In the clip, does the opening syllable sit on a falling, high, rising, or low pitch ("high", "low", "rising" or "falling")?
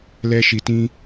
high